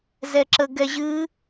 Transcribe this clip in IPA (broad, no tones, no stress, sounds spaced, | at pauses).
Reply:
z ɛ ǁ ə ɡ ɛ ʑ ɨ